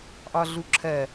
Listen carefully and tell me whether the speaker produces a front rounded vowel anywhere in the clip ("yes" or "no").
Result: no